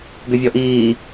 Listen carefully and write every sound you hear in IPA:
ɡʏvʲɔʔiː

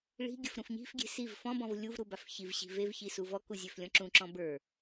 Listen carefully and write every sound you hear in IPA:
ɭi̤ɡʲəf ɾũfɲi̤fɡʲe̤ siv fɔ̃ bɔ̃vlʲuvɾu bafçivɕi̤ vevçi suvɔku zʲøflʲɔ̃ǁũǁɔ̃ bə˞

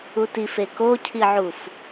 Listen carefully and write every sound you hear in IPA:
utif ekocʰiʕuf

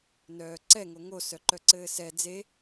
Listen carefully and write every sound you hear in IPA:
nœːǀɛ ŋoŋo sœǃœǀɘːsɛ d͡ze

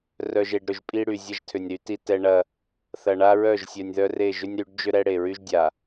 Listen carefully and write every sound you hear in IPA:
rœ˨ʒe˨ɖ ɾʏ˨ʒpʼi˦ɽy˨ zʲɐ˦ʒtʰʏ˨nʲɾy˦ti˦ tɛ˦ɳɐ˦ | θɐ˨ɳa˦ɹœ˦˨ʒ sʲœ˨nʲðœ˦re˦˨ ʒʏ˦nʲɾy˨˦ɖd͡ʒʏ˦ ɾɛ˦ɽe˨ɹy˦ʒdʲa˨

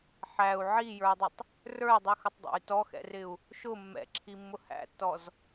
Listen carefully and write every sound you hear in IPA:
ħæu̯ ʕijə˞i̯dˤɪtˤ | rə˞i̯dˤixʊtˤdˤæ̰y̯ tɔxɛ̰rɪu̯ | ʃʊ mːɛ̰ǁʰimːʊ hæ̰tːɔz

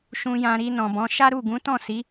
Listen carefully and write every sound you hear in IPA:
ʃũ˨jã˨ ɾi˧nɔ̃˨bɔ̃˨˦ ʃa˦ɾu˦˨ɡũ˨˦ tɔ̃˦˨si˨˦

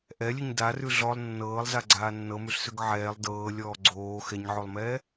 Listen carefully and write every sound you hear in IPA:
ʔɛlʲʉɲ darʉ ɮɔlˠ nːɤːlˠzaɡ͡ǀaː nːɤmʉɬsʉɡ ʕɛːlˠ dɤːlʲɔː ɡ͡ǀoː xɛɲʕolˠmɛː

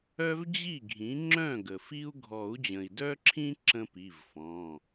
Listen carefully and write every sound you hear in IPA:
œ˦vd͡ʑi˥˩ɡʱĩ˩˥ ŋ͡ǁœ̃˥˩ɡə˩fi˦u̯ ɡʱɔ˨˩˦u̯d͡ʑə̃˩i̯dœ˦ǁʰĩ˦ ǁə̃˦pi˩˧˩vfɔ̃˩˧˩

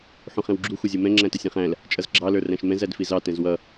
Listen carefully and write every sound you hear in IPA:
ħũχɛ̃wɡ͡ǁu xʷʌzʲumɛ̃ ŋ͡ǁæ̃təsʲɛ̃χæ̃l | t͡ʃʼʌzɡ͡ǁɑ lə˞ræ̃ʃmɛ̃z ædfizɑ tɛ̃zwʌ

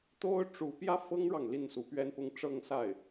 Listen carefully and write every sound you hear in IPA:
t̪o˥ʊ̯ʈ͡ʂu˧˥ pjä˥fɤ˥ŋɻɑ˨ŋ li˥˩nsu˧˥pɥɛ˥npʊ˥ŋ ʈ͡ʂɤ˥˧ŋsa˥˩ɪ̯

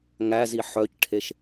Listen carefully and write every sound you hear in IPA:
ŋæzi ħœcʈʰeʃ

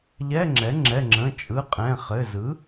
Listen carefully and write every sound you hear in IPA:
ʎɛ˧˥˧ŋ͡ǁɛ˩˥ ŋ͡ǁɛ˩˧˩ŋ͡ǁə̃˩˧˩ t͡ʃʼɯ˩˧˩ qʼɛ̃˩˧˩χɘ˩˧˩zɯ˩˥

